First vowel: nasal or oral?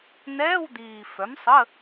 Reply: oral